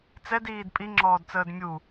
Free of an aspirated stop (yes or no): yes